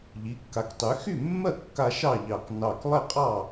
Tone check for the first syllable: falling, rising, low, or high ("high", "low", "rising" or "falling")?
rising